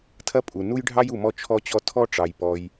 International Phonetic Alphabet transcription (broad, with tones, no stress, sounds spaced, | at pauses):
tʰ ɐ˥ pʼ u˩ n u˥ j ɖʱ ɑ˥ j u˩ m ɔ˥ t͡ʃʰ ɔ˥ t͡ɕ ɔ˥ tʰ ɔ˥ ʈ͡ʂ ɑ˩ j p ɔ˩ j